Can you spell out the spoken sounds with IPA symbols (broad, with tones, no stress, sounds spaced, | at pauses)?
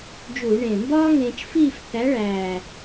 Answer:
d͡ʒ u˧˩˧ ɳ ẽ˨˩ m b ɒː˥ ŋ ẽː˧ t͡ʃ f iː˥˧ f θ æ˨˥ ɭ æː˨˩